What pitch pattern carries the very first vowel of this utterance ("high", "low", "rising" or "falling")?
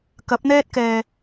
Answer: rising